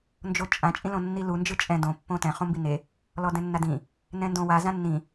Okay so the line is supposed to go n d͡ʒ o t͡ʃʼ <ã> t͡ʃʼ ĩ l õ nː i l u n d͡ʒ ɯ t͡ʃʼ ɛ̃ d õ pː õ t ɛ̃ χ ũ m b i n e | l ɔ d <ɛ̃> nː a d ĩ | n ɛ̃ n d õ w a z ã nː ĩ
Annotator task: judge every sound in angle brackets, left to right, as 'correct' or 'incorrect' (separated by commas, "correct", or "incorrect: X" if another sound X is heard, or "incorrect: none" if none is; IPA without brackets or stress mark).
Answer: correct, correct